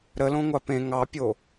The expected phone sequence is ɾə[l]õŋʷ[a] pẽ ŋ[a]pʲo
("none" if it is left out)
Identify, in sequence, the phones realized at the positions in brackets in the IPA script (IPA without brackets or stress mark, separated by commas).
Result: l, a, ɑ